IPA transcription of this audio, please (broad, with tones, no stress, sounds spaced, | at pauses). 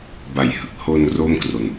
b a˩˦ j h ɯ˨˩ k̚ h o˧ n r o˥˩ m k r o˧ n